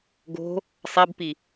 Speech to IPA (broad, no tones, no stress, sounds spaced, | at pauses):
ɡ o̤ | sˤ ɛ b p i